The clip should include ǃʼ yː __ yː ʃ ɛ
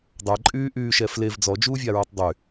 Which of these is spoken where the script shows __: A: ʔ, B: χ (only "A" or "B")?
A